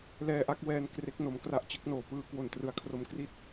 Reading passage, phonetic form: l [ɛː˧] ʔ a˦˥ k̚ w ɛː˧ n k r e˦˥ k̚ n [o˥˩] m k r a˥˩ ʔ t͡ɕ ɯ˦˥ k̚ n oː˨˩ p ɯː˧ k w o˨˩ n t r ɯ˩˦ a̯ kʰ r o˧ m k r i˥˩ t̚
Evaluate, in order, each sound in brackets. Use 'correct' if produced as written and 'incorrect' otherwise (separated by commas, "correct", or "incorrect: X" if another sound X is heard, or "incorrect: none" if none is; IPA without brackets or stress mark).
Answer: correct, incorrect: o˧